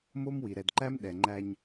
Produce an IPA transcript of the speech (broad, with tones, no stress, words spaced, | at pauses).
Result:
mo˦mwi˨ ɾɛ˨dǃæ˦m ɗɛ˨ŋ͡ǃæ˦ɲ